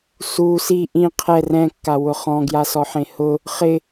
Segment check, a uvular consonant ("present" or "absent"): present